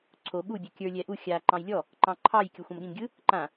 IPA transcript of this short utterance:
ǀʰo ɓu bʲokʲə˞ lʲɛʔu xʲa ǃɑ̃jlʲɔ | ǃɑ̃ǃʰɑj kʲoxʷãmɠĩmɡʲɯ | ǃã

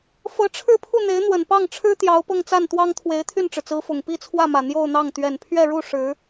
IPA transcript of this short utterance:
fɤ˧˥ʈ͡ʂʰɻ̩˥˧pʰu˥˩n̪e˧˥ɪ̯ n̪wə˨˩npɑ˥˩ŋʈ͡ʂʰɻ̩˥ t̪jɑ˧˥ʊ̯pɤ˥˧ŋt͡sa˥˩nt̪wɑ˥ŋ t̪ʰwe˧˥ɪ̯t̪ʰy˥˩nʈ͡ʂɻ̩˩t͡sɹ̩˧˥ fʊ˨˩ŋ pi˥˧t͡sʰwä˥˩mä˨˩ n̪jo˥˧ʊ̯n̪ɑ˥˩ŋ t̪ɥɛ˨˩npʰɥɛ˥˧ɻu˥˩ ʂɻ̩˧˥

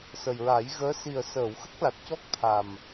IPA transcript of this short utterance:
sə˨˩jɹa˨˩˦jɣəː˧˥ si˨˩ə̯səː˨˩˨w xə˦˥k̚la˨˩t̚cɔ˦˥k̚t̪ʰa˨˩m

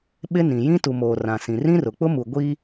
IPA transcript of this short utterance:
ɓɪ˦nĩ˨ jĩ˦tu˨moː˨ rã˨sĩ˨ rĩ˦rʊ˨k͡pʊ˦mu˨ ɡʷi˦

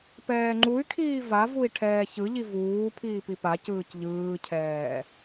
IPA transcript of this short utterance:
pɛːŋ͡ǃuy̯kʰiː vavui̯ ʈʰɛːçɯʎi vuːpʰiː pipacɯːc ʎɯːcʰɛː

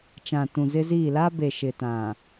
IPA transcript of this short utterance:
t͡ʃã˨tũ˨zɪ˦ziː˦˨ la˦be˨ʃɪ˨ tã˨

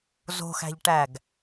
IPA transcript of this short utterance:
zo̤xæ̤ʎʈæɡ

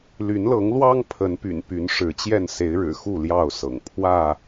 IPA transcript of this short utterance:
ly˨˦nlɤ˨˦ŋlwɑ˦ŋ pʰə˨˦npy̰˨˩n py˨˦nʂɻ̩˨˦t͡ɕjɛ˥˨n se˨˦ɪ̯ɻɻ̩˨˩xu˥˨ ljɑ˥˨ʊ̯sɤ̰˨˩ŋ pʰwä˥˨

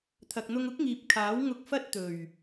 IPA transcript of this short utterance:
t̪ʰɐ˨k̚n̪ʊ˧ŋʊ˥k̚ŋiː˨p̚ kʰaː˨˥wŋʊ˧k̚fɐ˥t̚ t̪ɵ˨˩ɥ

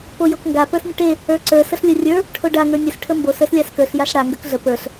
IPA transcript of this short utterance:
pojokŋɡa pə˞snʲəʈe | ə˞ǀə˞ səɬlʲorʲə˞ | ʈʰoɖa ŋə˞nʲəs ʈʰəmbos ə˞slʲaskə˞ɬ jaɬɽa ŋɡə˞kɮə pə˞ɬ

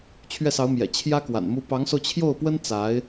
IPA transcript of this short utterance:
t͡ɕʰɥɛ˥˩sɑ˧˥ʊ̯mjɛ̰˨˩ t͡ɕʰjä˥kwa̰˨˩n mu˥ pɑ˧˥ŋso˧ʊ̯ t͡ɕʰjo˥˩ʊ̯pwə˥n t͡sa˧˥ɪ̯

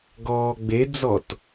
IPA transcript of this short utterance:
ɡɔːɡ͡bed͡zɔt

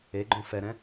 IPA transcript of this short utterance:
eɡ͡ǃõ fɛɾɛ̃

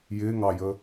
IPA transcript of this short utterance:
jɪː ŋɑjə

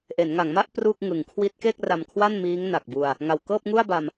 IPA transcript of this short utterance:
ʔe˩˦nŋa˩˦ŋma˥˩ʔ pru˥˩k̚ ŋɯ˨˩ŋ kʰwi˦˥t̚ke˥˩k̚ ra˧mkʰwa˥˩nmiː˦˥ŋ na˨˩k̚bu˧a̯ | ŋa˨˩wkɤː˥˩p̚ŋu˥˩a̯ ba˧m

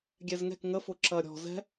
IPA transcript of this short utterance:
ɡʲɛzŋɛ̤k ŋəfʊ ǁɐɾʲɔ̤ zɛ̤

